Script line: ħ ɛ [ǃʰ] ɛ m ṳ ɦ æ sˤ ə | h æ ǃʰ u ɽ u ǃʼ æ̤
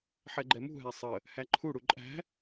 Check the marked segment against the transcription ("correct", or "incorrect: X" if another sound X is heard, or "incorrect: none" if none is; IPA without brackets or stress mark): incorrect: ɡ͡ǃ